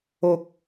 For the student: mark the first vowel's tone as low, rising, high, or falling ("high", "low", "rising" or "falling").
high